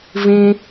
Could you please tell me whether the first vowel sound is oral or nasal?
nasal